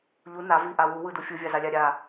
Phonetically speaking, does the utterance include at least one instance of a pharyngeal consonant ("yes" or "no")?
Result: no